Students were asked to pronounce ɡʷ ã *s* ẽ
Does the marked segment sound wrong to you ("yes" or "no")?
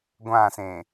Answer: no